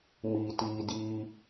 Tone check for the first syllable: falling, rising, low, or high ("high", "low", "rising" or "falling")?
low